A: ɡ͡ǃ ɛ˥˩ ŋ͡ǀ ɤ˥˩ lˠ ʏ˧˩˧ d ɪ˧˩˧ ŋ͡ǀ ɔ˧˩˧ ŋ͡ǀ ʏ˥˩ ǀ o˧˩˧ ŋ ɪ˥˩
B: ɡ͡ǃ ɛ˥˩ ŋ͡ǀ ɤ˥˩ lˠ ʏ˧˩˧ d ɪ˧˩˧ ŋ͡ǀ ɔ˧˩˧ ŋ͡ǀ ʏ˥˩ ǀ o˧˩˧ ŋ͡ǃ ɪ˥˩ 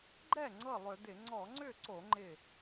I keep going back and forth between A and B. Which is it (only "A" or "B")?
B